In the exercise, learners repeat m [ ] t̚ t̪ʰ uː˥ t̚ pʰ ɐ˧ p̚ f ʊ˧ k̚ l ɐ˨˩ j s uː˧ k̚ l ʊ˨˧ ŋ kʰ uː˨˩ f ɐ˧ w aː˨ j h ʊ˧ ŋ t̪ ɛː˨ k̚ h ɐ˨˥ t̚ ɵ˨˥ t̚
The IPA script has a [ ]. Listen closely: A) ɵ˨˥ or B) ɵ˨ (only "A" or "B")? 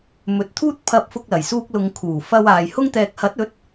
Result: A